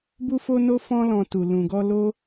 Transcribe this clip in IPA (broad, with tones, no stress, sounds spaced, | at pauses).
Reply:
b u˧ f o˧ n o˧ f ɔ̃˧ l ɔ̃˨ t u˨ l ũ˨ ɡ ɔ˧ l o˦